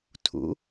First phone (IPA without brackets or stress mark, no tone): tʰ